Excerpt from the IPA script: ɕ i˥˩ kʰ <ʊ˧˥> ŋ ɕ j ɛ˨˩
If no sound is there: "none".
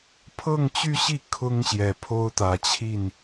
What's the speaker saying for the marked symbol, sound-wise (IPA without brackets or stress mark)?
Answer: ʊ˥